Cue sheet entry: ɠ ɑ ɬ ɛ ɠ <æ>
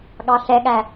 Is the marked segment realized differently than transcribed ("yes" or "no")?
no